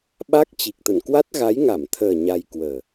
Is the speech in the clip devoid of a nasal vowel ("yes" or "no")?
yes